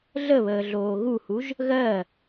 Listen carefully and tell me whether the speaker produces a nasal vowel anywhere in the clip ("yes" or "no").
no